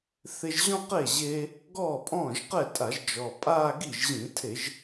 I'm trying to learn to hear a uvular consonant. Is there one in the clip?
yes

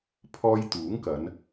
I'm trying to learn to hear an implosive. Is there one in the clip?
no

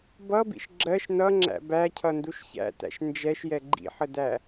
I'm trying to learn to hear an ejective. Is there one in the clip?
no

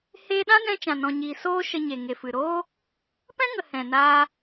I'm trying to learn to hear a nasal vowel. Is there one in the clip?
yes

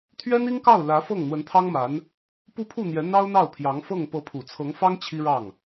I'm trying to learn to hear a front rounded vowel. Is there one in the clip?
no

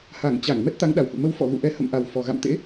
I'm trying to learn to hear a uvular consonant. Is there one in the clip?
no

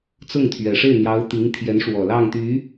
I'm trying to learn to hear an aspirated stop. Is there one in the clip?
yes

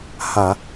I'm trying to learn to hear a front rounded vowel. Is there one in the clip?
no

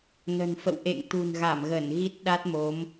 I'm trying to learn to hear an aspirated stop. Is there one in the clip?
no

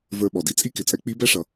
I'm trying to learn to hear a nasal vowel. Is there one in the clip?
no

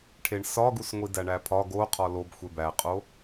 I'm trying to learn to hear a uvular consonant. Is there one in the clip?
yes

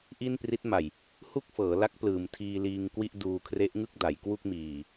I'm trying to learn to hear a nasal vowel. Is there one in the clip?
no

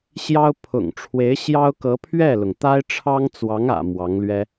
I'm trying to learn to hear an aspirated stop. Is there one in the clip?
yes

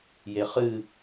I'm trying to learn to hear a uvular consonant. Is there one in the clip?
yes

